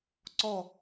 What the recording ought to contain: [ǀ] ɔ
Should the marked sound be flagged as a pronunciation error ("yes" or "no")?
no